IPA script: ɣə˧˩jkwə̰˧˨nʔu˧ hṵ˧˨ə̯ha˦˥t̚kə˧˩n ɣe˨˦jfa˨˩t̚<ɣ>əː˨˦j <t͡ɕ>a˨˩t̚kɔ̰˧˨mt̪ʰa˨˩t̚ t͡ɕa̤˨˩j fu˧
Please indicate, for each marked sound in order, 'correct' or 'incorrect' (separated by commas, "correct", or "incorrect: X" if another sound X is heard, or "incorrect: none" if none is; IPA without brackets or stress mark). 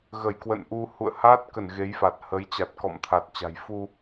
incorrect: h, correct